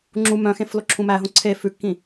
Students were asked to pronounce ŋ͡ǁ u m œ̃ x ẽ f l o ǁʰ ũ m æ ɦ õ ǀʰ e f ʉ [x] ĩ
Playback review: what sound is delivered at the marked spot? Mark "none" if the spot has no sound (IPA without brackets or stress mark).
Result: kː